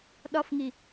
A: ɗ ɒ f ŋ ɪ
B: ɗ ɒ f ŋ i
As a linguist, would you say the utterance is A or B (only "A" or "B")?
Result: B